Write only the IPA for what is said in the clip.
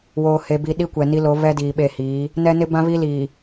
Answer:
woː˨he˨bi˨ ɗi˦kʷɛ˨ni˦lo˨˦ βɛ˦ diː˨ɓe˦˨hiː˨˦ | nɛ˦nɪ˦bã˦ βi˦liː˨

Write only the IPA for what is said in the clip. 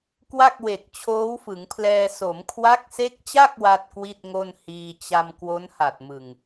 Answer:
kwa˥˩k̚we˨˩k̚ t͡ɕʰoː˦˥wfɯ˩˦ŋpʰlɛː˧ so˩˦mkʰwa˦˥k̚se˦˥k̚t͡ɕa˥˩k̚ wa˥˩t̚kwi˥˩t̚ŋo˥˩nhiː˧ t͡ɕa˧m kwo˦˥nha˨˩t̚mɯ˨˩ŋ

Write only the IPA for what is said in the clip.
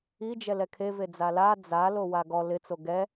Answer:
i d͡ʒɛlɛkʰe ved͡zala d͡za lowaɡɔ lɪ t͡soɡɛ

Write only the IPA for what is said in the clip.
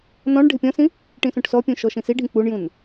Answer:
nɔ̃ɳɖʱɪ pʲɔ̃sĩ | ʈĩsũʈsɔpʲũ ʃɔʃĩsiɖʱĩ k͡puɳjũn

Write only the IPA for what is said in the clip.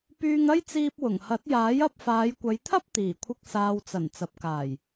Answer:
pyː˧ŋɐ˥jt͡siː˧p̚ wʊ˨˩ŋhɐ˨˥t̚jaː˨˥j ɐ˧p̚faː˨˧j kʷɐ˨˧jt̪ʰɐ˥p̚ t̪iː˨˩kʷʰɪ˧k̚ saː˨wt͡sɐ˨˩n t͡sɐ˨p̚kaː˨˩j

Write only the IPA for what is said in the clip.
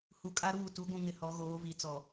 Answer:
hu˨kʼa˦ɾuː˦˨ tu˨˦ɡʷũ˨ŋɪ˨ hɔ˨˦ɣoː˨˦vi˨˦ t͡sɔ˨

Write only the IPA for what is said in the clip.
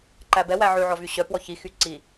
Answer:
ǃæbɛwæ ʕʉʕɔvy ɕœ pwɔçixy ǀi

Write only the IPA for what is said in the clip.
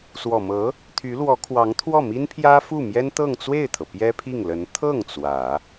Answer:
swɔ˨˩mɤ˧˥ | t̪ʰy˧˥lwɔ˧˥kʰwɑ˧˥ŋt̪ʰwɔ˥˩ mi˥npʰjä˥fu˥˩ mjɛ˥nt̪ɤ˥˧ŋt͡swe˥˩ɪ̯t̪ʰɤ˩ pjɛ˥pʰi˥˩ŋlə˧˥n t̪ʰɤ˥˩ŋ t͡swä˨˩˦

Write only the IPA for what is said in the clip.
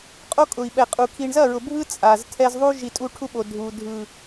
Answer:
qʼo˦kʼʊ˨i̯ɓɛ˨qʼu˨ kʰi˨ɳzɐ˦˨ɹʊ˨ bʱɯ˦ t͡sʼa˨ztʰɛ˦z ðˤu˦ʒi˨ tʼu˦ʈʰu˦ɓo˨ dʱu˨ dʱɯ˨

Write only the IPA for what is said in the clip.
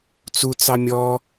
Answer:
t͡sut͡sɑ mʲɔ

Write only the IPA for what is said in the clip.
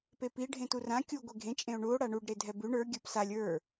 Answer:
pepi ɖʱẽturã kʲu ɡʷeɡʱẽ t͡ʃʼẽo̯ɳuo̯ ɽaɳuɖ ɾedʱɛbʉɳ ə˞ ɡʲə˞psalʲ ə˞

